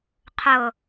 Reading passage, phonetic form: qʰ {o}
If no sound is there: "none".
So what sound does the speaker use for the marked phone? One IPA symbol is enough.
ɤ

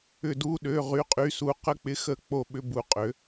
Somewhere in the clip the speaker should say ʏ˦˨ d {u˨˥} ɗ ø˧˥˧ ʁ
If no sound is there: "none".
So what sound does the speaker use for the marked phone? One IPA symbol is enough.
u˧˥˧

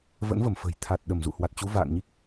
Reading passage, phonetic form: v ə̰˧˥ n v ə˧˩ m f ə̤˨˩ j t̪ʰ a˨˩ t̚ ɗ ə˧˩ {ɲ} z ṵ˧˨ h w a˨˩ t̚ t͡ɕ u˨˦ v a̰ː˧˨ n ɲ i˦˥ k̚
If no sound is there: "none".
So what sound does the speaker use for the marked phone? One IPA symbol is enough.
m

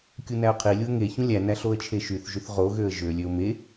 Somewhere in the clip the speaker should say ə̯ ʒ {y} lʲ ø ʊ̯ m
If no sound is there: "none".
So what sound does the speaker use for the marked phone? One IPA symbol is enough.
ø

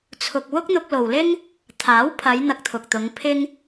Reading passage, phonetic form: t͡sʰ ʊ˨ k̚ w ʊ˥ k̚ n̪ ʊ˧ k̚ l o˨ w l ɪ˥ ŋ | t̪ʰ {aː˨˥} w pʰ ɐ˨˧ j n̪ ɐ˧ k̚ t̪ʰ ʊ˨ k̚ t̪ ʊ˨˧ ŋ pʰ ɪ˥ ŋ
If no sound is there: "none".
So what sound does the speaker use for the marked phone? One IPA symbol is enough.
aː˨˥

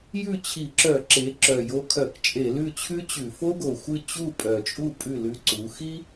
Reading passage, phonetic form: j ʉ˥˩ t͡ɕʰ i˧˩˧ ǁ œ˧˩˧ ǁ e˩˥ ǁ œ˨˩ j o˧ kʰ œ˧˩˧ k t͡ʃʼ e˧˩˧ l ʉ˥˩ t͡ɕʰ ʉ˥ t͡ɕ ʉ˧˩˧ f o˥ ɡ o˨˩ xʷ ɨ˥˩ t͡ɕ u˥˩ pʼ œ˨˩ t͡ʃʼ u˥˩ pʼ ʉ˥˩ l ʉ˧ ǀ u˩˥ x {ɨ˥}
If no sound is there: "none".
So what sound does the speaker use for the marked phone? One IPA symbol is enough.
i˥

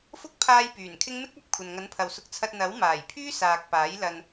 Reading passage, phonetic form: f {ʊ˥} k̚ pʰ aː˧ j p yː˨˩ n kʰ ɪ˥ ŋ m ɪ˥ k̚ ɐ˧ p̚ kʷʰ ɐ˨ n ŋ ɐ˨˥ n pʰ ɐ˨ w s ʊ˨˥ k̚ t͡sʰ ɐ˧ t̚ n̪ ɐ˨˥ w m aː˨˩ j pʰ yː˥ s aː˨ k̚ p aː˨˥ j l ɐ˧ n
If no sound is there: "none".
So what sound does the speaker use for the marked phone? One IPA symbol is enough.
ʊ˥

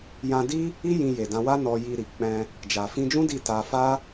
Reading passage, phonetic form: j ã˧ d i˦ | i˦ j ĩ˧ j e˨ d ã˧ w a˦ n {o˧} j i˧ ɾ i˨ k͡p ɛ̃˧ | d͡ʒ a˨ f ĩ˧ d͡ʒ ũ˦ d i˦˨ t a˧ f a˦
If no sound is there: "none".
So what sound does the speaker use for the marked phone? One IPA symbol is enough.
ɔ˧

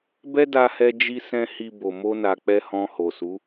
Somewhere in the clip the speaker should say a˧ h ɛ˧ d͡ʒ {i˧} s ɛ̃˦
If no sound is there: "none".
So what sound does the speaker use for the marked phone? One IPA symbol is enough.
i˦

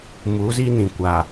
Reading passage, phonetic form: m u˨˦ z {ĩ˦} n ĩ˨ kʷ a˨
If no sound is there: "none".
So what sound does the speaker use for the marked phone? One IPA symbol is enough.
i˦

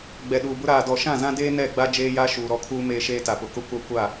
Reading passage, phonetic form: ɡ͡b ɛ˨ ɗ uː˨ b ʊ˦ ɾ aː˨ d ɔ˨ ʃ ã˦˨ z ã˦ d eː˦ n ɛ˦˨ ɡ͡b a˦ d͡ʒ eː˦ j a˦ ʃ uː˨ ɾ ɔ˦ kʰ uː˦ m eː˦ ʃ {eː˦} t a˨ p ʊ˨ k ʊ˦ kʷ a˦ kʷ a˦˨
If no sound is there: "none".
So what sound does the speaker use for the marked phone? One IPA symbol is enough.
eː˦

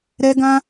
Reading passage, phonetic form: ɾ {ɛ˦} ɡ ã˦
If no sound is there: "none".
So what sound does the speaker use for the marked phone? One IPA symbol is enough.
ɛ˦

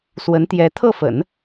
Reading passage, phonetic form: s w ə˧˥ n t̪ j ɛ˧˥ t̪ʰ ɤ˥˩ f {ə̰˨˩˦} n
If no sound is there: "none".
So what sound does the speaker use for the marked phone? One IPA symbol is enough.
ə̰˨˩˦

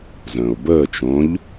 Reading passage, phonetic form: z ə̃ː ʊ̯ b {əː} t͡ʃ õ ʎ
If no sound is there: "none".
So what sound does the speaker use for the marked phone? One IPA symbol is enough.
əː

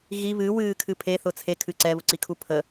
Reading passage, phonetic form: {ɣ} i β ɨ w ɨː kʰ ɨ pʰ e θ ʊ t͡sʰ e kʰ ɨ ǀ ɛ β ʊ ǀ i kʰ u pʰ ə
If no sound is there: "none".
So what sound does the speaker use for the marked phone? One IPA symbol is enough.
ɣ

